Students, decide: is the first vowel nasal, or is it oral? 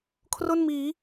oral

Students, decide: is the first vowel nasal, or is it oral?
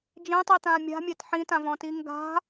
nasal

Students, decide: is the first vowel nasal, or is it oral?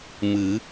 oral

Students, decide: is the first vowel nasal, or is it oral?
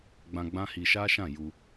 nasal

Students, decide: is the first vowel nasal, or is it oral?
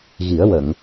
oral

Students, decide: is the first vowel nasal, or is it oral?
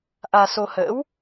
oral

